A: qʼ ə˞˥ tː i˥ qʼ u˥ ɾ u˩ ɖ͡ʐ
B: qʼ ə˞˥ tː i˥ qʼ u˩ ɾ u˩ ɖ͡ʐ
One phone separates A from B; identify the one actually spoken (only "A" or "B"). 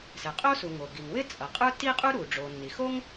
A